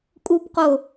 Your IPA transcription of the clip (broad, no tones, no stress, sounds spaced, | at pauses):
kʼ u p q o